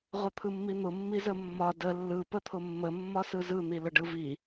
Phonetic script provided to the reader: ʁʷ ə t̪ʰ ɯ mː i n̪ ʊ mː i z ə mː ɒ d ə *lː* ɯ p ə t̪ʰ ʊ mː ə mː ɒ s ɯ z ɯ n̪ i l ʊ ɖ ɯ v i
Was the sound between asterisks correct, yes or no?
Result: yes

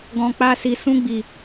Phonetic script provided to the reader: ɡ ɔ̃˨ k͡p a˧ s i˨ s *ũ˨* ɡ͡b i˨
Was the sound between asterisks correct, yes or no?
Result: no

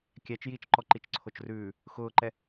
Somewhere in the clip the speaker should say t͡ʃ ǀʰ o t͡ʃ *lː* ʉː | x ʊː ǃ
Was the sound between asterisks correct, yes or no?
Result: no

